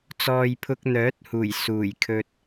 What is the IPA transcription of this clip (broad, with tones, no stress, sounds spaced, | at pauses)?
t͡s ɔː˨ j pʰ ʊ˧ k̚ n̪ œː˨˥ t̚ h uː˨˩ j s uː˨˩ j kʰ ɵ˧ t̚